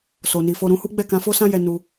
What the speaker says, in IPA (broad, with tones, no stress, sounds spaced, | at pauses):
s o˨ n i˨ f o˧ ɾ ũ˧ h u˦ ɡ͡b ɛ˦˨ k ã˨˦ f o˦ s ã˦ j ɛ˧ n u˧